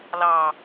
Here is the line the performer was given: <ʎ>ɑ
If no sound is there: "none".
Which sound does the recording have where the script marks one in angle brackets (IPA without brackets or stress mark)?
l